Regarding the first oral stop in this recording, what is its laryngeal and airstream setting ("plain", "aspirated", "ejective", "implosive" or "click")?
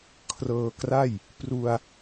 aspirated